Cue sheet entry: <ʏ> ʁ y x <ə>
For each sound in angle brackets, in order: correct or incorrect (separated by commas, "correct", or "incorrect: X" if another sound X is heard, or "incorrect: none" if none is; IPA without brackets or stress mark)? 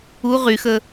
incorrect: u, correct